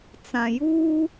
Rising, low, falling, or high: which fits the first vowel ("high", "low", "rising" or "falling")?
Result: low